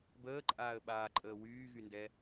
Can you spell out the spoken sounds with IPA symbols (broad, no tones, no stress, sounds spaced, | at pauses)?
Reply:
b əː ǃʼ aː ə̯ ɓ aː ǃʼ əː w yː ɣ y n d ɛ